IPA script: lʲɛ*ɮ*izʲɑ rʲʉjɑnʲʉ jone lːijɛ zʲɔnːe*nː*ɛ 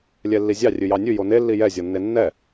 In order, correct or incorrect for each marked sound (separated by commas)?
incorrect, correct